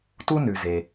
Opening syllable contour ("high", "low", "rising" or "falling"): high